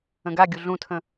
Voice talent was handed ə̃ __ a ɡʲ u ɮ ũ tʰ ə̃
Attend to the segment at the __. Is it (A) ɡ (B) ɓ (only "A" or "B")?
A